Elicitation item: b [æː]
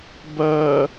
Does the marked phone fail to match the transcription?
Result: yes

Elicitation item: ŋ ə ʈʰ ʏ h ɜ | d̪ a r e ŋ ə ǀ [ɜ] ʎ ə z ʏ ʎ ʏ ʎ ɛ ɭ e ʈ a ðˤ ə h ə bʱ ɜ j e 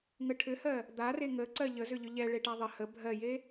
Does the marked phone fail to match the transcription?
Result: no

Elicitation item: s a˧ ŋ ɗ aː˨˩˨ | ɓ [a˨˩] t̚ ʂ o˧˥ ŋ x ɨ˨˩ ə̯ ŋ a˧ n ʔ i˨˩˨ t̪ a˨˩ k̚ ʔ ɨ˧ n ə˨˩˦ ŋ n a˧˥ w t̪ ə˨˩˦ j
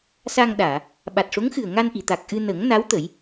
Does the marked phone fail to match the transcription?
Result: no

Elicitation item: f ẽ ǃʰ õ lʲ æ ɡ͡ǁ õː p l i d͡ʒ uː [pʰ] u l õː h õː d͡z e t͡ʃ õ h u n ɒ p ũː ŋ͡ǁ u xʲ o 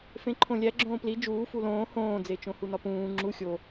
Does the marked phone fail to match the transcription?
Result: yes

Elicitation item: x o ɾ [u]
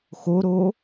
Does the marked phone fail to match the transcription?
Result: yes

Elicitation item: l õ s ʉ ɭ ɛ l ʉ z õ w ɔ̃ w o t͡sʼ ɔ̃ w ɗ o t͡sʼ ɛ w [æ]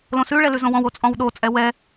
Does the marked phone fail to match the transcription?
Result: yes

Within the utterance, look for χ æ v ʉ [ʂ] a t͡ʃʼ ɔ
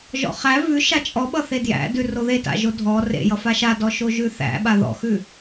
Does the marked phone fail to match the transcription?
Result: yes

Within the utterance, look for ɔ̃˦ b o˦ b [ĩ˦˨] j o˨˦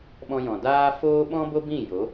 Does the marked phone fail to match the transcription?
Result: no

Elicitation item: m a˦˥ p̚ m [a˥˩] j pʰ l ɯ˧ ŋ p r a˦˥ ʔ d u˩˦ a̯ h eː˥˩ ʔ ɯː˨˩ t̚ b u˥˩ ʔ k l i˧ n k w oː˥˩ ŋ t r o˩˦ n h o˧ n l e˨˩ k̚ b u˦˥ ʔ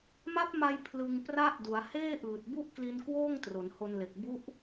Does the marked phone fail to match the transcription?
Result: yes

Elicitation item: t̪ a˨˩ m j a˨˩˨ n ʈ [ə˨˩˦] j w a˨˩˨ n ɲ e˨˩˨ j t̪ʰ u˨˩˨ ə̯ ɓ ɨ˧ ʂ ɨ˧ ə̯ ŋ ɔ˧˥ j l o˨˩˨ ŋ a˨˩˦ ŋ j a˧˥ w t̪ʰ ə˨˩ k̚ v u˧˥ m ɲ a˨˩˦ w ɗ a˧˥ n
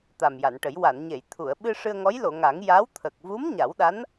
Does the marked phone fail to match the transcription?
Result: no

